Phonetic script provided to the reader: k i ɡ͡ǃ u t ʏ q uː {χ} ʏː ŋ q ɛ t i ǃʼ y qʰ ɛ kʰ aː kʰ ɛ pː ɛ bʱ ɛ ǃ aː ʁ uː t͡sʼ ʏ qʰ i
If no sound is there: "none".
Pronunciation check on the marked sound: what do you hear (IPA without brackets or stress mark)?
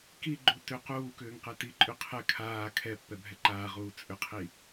k